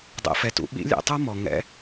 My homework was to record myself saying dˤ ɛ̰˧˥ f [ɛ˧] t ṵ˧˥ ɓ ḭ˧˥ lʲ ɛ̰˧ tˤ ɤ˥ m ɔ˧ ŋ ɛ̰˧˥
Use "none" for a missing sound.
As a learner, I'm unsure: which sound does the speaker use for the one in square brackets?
ɛ˧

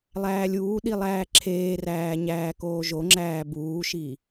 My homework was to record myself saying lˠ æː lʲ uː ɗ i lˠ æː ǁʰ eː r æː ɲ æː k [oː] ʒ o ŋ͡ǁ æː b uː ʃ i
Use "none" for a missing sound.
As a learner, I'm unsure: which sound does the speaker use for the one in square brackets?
oː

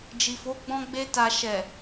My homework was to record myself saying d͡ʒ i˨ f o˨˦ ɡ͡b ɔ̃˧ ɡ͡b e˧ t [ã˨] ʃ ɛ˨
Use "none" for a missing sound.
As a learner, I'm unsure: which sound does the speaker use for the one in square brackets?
a˨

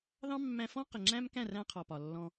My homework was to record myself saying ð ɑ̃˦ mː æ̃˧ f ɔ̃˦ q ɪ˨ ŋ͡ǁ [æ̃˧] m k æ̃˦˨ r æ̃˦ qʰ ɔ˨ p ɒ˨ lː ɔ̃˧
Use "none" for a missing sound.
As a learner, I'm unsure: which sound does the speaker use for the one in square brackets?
æ̃˦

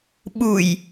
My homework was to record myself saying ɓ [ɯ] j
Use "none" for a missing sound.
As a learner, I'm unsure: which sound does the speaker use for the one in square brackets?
u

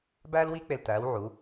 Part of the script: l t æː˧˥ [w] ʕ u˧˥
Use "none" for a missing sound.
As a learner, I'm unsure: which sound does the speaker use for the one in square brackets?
w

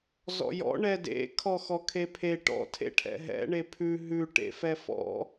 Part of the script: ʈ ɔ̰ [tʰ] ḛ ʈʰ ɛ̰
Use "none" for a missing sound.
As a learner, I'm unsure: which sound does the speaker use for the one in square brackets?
tʰ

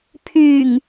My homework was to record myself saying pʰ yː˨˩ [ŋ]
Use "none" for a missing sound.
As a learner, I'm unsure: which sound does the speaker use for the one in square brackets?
ŋ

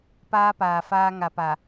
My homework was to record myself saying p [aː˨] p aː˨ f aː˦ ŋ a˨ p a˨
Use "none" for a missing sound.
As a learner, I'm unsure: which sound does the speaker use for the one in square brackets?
aː˦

